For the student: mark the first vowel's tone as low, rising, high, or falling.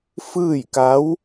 falling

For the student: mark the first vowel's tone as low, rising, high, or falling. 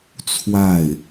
falling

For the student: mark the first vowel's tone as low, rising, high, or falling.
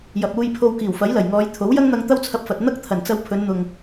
low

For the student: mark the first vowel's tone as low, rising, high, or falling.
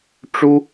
high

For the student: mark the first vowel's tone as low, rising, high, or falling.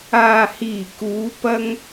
low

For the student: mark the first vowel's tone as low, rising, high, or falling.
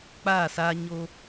falling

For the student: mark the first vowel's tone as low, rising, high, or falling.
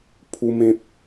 high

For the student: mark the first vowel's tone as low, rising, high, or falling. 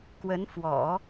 rising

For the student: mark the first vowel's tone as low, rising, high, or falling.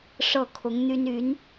falling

